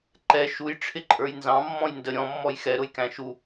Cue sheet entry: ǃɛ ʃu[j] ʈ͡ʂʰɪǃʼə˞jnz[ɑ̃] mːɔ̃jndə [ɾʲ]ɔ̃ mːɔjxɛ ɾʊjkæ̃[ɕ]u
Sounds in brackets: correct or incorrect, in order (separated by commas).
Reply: correct, correct, correct, incorrect